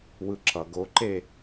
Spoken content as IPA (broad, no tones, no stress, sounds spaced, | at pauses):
w ɯ ǁ ʌ ɡ o ǃ e